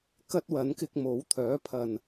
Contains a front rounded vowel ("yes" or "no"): yes